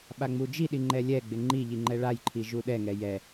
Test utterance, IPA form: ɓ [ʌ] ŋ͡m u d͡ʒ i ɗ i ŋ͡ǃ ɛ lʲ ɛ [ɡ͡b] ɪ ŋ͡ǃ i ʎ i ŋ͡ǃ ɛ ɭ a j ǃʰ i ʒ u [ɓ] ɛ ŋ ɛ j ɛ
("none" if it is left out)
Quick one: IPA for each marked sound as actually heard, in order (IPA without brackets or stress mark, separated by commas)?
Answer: a, ɡ͡b, ɗ